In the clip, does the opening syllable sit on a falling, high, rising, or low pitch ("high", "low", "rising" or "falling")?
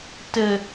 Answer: low